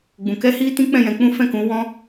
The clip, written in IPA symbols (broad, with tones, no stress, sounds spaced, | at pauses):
ɡ͡b ũ˧ k ɛ˦ h i˦ t ĩ˦ k͡p ɛ̃˦˨ j ɛ̃˧ k͡p ũ˦ f ɛ̃˦˨ k ũ˨˦ w ɔ̃˦